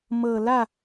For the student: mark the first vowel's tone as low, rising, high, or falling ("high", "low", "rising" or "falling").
low